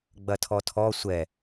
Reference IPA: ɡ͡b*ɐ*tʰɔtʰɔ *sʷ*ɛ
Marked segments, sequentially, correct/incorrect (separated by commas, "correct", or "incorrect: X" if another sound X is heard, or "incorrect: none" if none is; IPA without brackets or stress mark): correct, correct